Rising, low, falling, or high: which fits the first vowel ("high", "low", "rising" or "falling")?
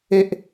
high